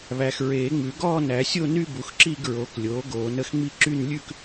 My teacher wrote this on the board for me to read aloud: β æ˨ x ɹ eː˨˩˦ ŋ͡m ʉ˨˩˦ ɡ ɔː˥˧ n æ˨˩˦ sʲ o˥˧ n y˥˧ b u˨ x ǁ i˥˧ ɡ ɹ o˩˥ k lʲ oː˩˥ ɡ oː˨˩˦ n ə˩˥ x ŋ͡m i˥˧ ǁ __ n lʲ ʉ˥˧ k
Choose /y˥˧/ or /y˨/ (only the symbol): y˥˧